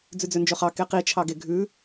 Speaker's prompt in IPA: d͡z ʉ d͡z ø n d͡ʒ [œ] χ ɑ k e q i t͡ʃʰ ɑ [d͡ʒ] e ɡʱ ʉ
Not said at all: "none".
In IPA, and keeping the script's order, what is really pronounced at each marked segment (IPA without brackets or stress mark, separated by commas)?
ø, ɡ